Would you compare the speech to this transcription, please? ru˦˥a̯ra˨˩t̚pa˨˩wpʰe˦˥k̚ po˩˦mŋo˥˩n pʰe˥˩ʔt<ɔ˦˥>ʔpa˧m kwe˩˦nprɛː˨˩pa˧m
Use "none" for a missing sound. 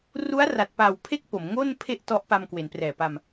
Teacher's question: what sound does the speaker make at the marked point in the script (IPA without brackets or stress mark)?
ɔ˦˥